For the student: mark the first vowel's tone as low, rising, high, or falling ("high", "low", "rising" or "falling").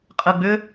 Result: low